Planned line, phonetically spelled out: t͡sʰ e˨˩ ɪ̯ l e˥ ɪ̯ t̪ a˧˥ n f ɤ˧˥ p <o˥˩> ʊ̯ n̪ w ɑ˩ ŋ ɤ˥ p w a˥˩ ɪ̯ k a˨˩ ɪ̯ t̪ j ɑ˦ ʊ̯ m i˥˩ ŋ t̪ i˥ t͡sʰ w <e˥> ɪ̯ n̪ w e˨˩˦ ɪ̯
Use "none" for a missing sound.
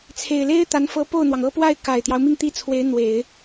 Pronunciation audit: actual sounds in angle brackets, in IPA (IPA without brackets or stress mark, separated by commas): o˥˩, e˧˥